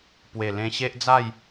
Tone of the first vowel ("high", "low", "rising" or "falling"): low